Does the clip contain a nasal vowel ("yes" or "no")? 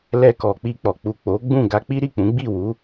yes